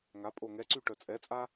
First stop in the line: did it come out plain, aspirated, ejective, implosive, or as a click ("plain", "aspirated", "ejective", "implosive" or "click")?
ejective